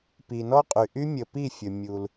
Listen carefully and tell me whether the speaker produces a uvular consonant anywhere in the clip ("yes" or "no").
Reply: yes